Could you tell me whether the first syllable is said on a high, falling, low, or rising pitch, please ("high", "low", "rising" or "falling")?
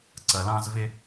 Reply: low